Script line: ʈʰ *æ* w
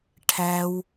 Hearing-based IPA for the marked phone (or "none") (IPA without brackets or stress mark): æ